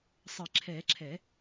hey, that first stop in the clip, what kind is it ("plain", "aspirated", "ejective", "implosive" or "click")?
click